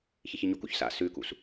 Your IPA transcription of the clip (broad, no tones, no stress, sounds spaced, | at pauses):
ç i ç i ɲ o k ṵ ç s a̰ s ʉ k ṵ s